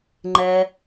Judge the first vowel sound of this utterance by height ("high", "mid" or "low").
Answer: mid